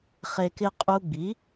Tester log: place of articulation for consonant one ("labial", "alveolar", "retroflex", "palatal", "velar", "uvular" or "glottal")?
uvular